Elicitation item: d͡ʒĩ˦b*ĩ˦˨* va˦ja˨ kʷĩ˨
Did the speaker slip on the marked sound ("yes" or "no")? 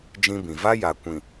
yes